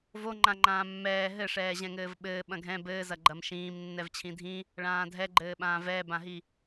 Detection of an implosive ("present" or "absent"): present